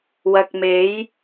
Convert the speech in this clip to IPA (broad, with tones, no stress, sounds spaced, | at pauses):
w ɐ˨ k̚ m e˨˧ j